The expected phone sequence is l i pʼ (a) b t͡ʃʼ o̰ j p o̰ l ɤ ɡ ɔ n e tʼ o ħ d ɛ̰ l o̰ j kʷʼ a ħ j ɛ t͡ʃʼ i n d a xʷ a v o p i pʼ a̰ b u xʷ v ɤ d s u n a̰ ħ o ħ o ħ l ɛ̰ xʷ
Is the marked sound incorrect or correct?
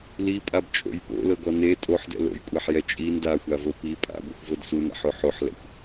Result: correct